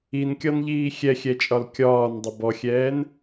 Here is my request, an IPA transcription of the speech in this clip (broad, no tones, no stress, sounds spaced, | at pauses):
i n kʲ ɒ n ʎ iː xʲ ɛ xʲ ɛ t͡ʃʼ ɒ l kʲ ɒː n dˤ ə b ɔ xʲ ɛː n